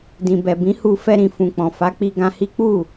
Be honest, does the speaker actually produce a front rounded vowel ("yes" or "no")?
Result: no